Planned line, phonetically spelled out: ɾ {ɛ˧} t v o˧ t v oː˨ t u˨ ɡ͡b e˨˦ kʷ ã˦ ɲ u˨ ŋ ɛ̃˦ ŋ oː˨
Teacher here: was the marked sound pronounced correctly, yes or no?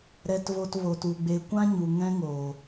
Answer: yes